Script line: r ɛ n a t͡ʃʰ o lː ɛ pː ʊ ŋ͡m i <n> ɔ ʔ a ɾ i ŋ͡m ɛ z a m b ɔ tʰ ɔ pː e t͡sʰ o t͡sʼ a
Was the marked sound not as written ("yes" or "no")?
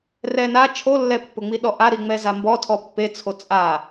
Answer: yes